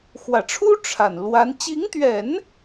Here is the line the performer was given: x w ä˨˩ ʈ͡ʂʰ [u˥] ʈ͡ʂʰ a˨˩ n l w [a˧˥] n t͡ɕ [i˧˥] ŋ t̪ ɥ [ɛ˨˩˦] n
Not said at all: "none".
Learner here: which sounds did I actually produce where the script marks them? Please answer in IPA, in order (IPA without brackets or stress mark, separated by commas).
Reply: u˥, a˧˥, i˧˥, ɛ˨˩˦